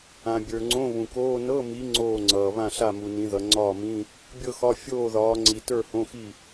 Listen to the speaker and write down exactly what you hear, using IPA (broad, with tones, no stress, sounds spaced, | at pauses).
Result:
ã˨ bʲ ə˞˨ ŋ͡ǀ õ˧˥˧ β ũ˨ k oː˧˥˧ n ɤ˧˥˧ m i˨˦ ŋ͡ǀ oː˥˨ ŋ͡ǀ ʌː˨ β ã˥˨ ɬ a˥˨ m u˨ n ĩ˨˦ ð ʌ˨˦ ŋ͡ǀ ɒː˥˨ m ĩ˧˥˧ | bʲ ɤ˥˨ x ɒ˧˥˧ fʲ oː˥˨ ð ɒː˨˦ ŋ͡ǀ i˨ t ə˞˥˨ h õ˧˥˧ x i˥˨